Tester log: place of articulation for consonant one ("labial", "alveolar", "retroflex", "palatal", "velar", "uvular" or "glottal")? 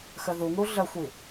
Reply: velar